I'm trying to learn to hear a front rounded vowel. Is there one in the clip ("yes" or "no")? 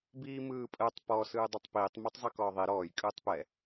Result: no